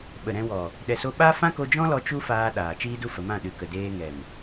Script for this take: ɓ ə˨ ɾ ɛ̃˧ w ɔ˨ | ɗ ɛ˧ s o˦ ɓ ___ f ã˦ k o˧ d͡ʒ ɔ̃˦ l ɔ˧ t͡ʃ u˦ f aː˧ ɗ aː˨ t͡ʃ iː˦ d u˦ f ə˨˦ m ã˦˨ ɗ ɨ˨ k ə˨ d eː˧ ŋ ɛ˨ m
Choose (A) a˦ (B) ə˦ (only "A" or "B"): A